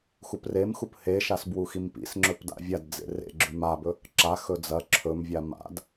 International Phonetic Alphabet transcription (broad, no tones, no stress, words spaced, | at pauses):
xupremxup heʃas bwuximpḭsŋ͡ǁɵp da̰vʲadd͡zḛ rḛɡ͡ǁʉm abɵ | ǁaxɵ d͡zɐ ǁʰɵmvʲa ma̰d